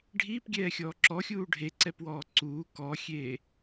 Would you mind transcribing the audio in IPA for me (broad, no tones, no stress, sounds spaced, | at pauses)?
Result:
ɖʱ iː p ɡʲ ɛː xʲ ɔː ǁ ɔ xʲ uː ɖʱ e ǀ ɛ p w ɔː ǀ uː k ɔ xʲ eː